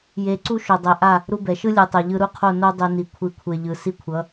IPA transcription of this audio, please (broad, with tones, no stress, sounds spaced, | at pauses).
j e˨˦ ǀ u˦ ʃ o˨ dˤ ɛ˨ ʔ a˦˨ | ɾ u˧ b ɛ˨ ʃ ɯ˦ lʲ ɯ˨ tˤ ɛ˨ ʎ ɯ˧ ɾ u˦˨ qʰ o˦˨ n o˦ dˤ e˧ n i˨ kʷʰ i˨˦ kʷʰ e˨ ʎ ɯ˨ s i˦ kʷʰ ʌ˨˦